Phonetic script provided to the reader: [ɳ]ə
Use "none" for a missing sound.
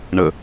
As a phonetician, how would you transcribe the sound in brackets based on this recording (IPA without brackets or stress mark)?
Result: ɳ